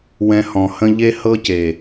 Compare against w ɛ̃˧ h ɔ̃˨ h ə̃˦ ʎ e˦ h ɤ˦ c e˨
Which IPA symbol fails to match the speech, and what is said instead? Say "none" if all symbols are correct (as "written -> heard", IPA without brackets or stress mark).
none